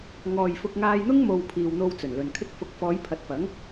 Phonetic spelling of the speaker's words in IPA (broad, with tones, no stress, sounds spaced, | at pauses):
ŋ ɔː˨ j f ʊ˧ k̚ ŋ aː˧ j n̪ ʊ˥ ŋ m o˨ w pʰ iː˨ w n̪ o˧ w t͡s ɵ˨˩ n l ɵ˨ n kʰ ɪ˧ k̚ f ʊ˨˥ k̚ f ɔː˨˧ j pʰ ɐ˨˥ t̚ f ɐ˨˥ ŋ